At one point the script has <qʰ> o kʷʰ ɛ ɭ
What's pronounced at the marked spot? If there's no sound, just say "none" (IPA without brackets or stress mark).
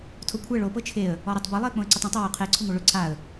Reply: tʰ